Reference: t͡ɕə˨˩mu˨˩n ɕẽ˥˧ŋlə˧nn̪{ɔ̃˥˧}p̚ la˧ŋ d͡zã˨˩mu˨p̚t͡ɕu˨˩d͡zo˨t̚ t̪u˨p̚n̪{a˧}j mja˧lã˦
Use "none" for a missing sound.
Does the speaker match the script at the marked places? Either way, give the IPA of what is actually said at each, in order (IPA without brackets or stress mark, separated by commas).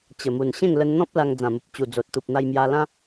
ɔ̃˦, a˧